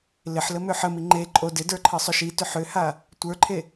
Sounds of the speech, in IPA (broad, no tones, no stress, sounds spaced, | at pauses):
l ɪ ħ l ə m ʏ ħ ə m i ŋ͡ǃ e ǃʼ o d ɪ d ə˞ ǃʰ ə sˤ ʏ ʃ i t ʏ ħ ʏ h a | tʷ ə˞ ǃʰ e